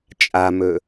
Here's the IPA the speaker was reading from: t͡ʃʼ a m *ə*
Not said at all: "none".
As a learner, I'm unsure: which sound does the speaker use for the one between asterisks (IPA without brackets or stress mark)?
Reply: ɵ